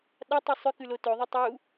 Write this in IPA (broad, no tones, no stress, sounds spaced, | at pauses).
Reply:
ɗ a tˤ u sˤ ʉ k ʉ l o t ɵ ðˤ e tˤ u